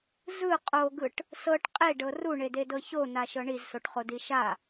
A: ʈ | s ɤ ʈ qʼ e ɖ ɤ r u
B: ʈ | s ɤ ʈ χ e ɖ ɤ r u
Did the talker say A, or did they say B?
A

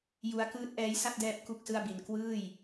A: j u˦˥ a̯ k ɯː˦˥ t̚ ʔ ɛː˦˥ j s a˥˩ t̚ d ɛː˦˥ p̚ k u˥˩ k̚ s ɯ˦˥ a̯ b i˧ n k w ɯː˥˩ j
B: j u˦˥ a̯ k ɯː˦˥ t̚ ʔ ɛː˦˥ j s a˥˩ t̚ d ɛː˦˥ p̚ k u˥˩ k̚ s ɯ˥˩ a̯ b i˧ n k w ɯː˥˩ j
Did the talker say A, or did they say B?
B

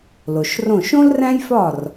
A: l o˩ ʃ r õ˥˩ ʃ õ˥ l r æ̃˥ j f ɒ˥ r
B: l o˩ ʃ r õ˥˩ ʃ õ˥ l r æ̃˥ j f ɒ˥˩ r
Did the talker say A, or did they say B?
B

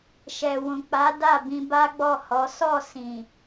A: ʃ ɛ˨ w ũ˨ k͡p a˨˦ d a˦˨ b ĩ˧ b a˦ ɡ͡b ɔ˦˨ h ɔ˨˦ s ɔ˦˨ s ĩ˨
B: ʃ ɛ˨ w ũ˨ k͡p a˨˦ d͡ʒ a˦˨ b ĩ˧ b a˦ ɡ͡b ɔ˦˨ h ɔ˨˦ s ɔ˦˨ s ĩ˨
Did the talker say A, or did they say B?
A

